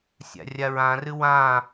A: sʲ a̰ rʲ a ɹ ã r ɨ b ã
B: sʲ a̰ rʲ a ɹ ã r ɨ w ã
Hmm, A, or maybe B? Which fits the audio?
B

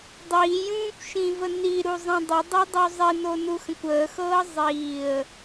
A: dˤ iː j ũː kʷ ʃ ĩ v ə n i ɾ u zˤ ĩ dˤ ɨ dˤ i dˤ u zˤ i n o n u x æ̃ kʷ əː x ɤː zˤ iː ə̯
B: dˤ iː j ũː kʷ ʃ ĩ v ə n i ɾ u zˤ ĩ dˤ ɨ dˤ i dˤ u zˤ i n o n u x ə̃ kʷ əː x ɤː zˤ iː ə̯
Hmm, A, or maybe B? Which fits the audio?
B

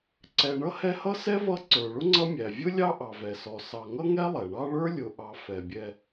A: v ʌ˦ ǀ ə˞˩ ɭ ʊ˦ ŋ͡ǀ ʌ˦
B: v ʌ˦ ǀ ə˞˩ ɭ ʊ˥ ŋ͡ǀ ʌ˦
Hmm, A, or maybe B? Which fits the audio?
B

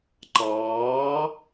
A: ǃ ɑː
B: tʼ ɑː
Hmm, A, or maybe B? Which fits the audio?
A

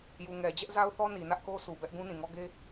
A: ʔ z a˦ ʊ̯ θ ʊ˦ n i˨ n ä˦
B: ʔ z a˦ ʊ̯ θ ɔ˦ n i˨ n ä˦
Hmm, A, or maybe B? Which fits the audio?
B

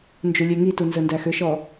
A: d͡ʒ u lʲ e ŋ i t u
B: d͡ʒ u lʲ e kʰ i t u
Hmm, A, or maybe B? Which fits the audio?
A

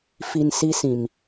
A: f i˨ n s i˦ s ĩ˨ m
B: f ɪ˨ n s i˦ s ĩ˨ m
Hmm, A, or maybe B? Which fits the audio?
A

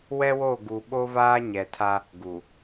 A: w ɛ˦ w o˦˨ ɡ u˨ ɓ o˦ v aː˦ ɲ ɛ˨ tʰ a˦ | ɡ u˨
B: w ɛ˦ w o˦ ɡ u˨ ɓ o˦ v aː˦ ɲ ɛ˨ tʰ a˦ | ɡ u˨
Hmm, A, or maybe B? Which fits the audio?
A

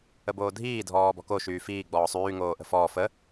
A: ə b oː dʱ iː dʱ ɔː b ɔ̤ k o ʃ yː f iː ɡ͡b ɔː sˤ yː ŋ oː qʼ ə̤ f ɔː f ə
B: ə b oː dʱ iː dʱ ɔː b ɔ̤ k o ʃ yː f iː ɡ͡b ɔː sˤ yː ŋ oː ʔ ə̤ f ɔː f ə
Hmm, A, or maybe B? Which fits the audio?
B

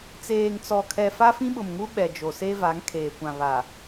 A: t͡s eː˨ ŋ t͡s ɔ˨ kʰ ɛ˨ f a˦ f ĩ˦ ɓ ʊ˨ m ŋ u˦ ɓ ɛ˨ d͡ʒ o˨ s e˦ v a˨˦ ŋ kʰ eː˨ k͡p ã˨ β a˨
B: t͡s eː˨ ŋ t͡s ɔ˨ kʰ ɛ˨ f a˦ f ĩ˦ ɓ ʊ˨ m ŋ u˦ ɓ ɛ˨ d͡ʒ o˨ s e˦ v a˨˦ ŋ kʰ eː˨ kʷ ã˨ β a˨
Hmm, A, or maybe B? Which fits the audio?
B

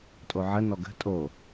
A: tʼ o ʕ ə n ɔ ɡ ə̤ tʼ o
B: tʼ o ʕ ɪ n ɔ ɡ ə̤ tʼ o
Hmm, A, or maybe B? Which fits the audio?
A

